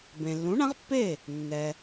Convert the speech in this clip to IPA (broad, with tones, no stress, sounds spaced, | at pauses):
b ẽ˩ lː ũ˩˥ ɳ ã˩˥ ʁ pː e˥˩ | nː ɛ˩